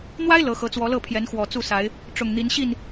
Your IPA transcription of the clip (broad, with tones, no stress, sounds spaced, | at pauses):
n̪ w a˦ ɪ̯ l ɤ˨˦ x ɤ˨˦ t͡s w ɔ˨˦ l ɤ˥˨ pʰ j ɛ˨˦ n x w ɔ˨˩ t͡s u˥˨ s a˨˦ ɪ̯ | ʈ͡ʂ ʊ˨˩ ŋ n̪ i˨˦ n ɕ i˥˨ n